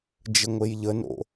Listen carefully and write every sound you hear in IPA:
d͡ʒ ə ŋʷ e j ʎ ə n o̰

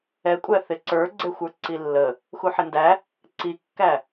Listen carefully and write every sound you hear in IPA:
ɛ kʷʼ æ θ ɪ ǀ ə˞ ɡ͡ǀ ɛ xʷ ə˞ ǀ i lː ə | x u ħ ɪ n d æ | ǀ i kː æ

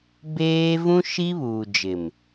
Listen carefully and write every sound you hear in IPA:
b eː˦ v ũ˦ ʃ i˦ β uː˨ d͡ʒ ɪ˨ m

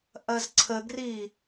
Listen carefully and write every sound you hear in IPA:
ʔ ɐ z ǀʰ ə ɡ r i

